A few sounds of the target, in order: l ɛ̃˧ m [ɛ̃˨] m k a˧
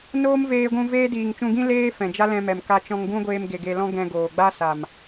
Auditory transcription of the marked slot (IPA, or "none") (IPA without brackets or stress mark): ɛ˨